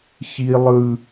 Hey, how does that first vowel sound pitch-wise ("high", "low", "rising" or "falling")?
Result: high